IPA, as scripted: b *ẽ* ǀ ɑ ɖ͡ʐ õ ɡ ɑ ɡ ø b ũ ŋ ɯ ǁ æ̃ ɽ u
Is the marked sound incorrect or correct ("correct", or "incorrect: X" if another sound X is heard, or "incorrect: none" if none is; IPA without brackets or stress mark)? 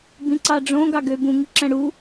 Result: incorrect: ĩ